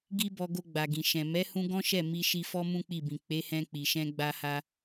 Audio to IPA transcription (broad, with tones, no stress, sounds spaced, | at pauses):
ɡ i˦ b ɔ˧ ɡ o˧ ɡ͡b a˨ ɡ ĩ˨ ʃ ɛ̃˨ m ɛ˨˦ h ũ˧ ɡ ɔ̃˦ ʃ ɛ˦˨ m i˧ ʃ i˧ f ɔ˧ m ũ˦ k͡p i˦˨ b ĩ˨ k͡p e˨˦ h ɛ̃˧ k͡p i˨ ʃ ɛ̃˧ ɡ͡b a˧ h a˧